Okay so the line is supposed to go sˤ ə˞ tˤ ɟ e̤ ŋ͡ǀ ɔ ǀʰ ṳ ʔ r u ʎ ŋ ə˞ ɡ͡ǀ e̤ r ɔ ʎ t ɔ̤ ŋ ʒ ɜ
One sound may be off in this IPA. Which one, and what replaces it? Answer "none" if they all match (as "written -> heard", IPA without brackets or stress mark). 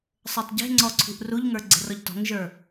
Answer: ɜ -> ə˞